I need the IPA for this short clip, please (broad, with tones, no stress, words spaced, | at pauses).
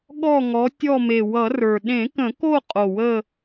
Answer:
ɠɔ˦˨ŋɔ˨˦ tʲɔ˦˨me˨˩ wʌ˨˩˦rə˞˨˩ ɗẽ˨˩˦kə̃˨˩˦ko˦˨ qʼo˨˩wə˦˨